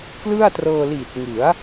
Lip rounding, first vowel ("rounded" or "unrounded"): unrounded